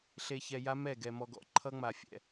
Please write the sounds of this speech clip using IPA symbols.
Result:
ɬ e˨ ç ɛ˨ j a˦ m ɛ˦˨ ɡ ɛ˨ m ɔ˨ ɡ ɔ̰˨ ǃʰ ʌ˦ ŋ͡m a˨ fʲ ɛ̰˨

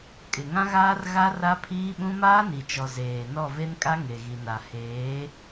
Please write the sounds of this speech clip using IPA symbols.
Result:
kʼ ɪ˨ ŋ ã˦ ɣ aː˦ r ɣ a˦ r a˦ pʰ iː˦ ɓ ũ˦ m aː˦ n i˨ t͡ʃ ɔ˨ z eː˨ n ɔ˦˨ v e˦ n kʼ a˦ ŋ e˨ ɣ i˨ n a˨ h eː˨˦

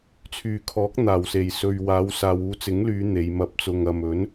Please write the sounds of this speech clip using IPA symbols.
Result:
t͡sʰ yː˨˩ kʰ ɔː˨˥ k̚ n̪ aː˨˩ w s e˨˩ j s ɵ˨ ɥ w aː˨˧ w s aː˨ w uː˨˧ t͡s ɪ˨˥ ŋ l yː˨˧ n̪ e˨˧ j m ɐ˧ p̚ t͡s ʊ˧ ŋ ɐ˨ m ɵ˨˥ n

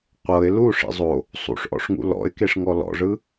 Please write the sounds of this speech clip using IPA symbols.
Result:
qʷ ɤ ɪ̯ l u ʂ ḭ zˤ o | sˤ ṵ ʂ ʔ ɔ̰ ʂ ŋ ṵ l ɔ̰ ɪ̯ k e ʂ ŋ ɔ l ɔ̰ ʐ ɯ

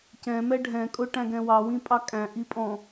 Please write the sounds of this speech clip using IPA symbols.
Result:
c ɛ̃ m ɛ ɖʱ ɛ̃ kʼ ʊ ʈ æ̃ ɡ ɛ̃ w ɑ w ĩ pʼ ɑ kʼ æ̃ ʔ i pʼ ɔ̃

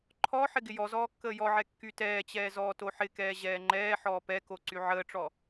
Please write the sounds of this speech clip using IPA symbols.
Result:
ǃʰ ɔ ħ ɪ ɡ ɪ j ɔ z ɔː kː əː j ɔ ʕ ɛ kː y t ɛː t͡ɕ ɛː z ɔː t o ħ ɪ k ɛː ʑ ɛː ŋ͡ǃ ɛː ħ ɔː p ɛ k o ǀ y ʕ əː ʈ͡ʂ ɔ

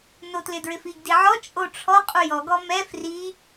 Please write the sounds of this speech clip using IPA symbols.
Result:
n o t l ɪ d ɹ ɪ f i ɡ d i ʕ ɔ t͡ʃʼ o ʈ͡ʂʰ ɔ qʼ u j ɔ ɡ ɔ m ɛ f r i

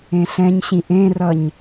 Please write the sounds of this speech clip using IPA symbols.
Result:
ẽ ɬ ɛ̃ ɲ ɕ ĩ ʔ ẽ r ʌ ɲ

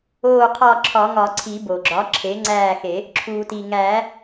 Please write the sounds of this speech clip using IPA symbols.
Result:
oː˦˨ qʰ ɒ˦˨ ǁʰ ɒ˨˩˦ ŋ ɒ˨˩˦ ǀʰ i˨˩˦ b o˩ ɡ͡ǁ ɒ˩˥ ǁʰ e˩˥ ŋ͡ǀ æː˦˨ x e˨˩˦ | ǁʰ uː˩ t i˩ ŋ æː˨˩˦

